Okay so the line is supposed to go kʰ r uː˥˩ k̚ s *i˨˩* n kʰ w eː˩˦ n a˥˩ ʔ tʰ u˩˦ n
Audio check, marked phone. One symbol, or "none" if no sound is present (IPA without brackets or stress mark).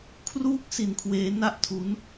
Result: i˨˩